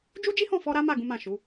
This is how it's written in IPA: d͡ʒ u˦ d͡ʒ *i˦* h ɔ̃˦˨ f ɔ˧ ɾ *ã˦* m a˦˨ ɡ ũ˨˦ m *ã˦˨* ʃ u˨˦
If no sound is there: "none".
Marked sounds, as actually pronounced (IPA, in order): i˦, a˦, ã˦˨

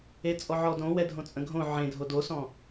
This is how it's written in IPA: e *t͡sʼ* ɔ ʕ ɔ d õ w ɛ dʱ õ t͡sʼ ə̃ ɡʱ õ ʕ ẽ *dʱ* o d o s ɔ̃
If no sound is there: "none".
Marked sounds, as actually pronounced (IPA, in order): t͡sʼ, dʱ

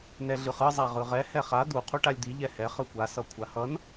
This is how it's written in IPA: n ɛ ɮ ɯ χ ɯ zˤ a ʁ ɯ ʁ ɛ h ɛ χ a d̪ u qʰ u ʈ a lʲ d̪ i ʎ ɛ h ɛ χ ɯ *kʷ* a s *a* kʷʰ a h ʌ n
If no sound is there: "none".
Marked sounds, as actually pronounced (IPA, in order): kʷ, ʌ

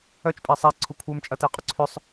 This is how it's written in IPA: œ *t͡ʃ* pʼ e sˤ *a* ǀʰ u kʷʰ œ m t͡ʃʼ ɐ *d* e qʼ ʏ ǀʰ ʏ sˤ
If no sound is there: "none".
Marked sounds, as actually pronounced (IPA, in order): t͡ʃ, a, t

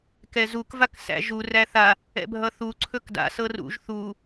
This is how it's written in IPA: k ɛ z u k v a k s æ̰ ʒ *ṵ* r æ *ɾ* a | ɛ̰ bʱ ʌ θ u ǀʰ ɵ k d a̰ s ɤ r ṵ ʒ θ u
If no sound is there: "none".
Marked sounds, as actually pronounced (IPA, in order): u, θ

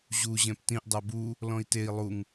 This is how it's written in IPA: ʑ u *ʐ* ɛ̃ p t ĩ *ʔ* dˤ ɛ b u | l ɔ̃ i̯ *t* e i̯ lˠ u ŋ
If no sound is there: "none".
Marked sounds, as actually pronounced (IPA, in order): ʑ, ʔ, t

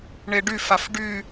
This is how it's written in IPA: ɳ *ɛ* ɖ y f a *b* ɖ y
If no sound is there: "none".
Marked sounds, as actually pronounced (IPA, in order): e, f

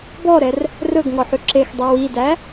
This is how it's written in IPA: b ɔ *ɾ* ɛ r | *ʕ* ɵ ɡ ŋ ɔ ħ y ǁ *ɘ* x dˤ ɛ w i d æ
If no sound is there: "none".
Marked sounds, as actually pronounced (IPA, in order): ɾ, r, e

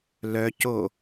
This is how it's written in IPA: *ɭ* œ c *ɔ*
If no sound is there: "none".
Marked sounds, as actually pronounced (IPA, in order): l, o

